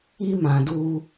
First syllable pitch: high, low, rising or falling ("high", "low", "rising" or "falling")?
high